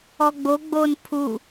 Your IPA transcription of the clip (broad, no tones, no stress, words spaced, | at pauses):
ɔɡ͡bo ɡ͡bon pʰu